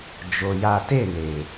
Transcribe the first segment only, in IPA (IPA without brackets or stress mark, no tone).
d͡ʒ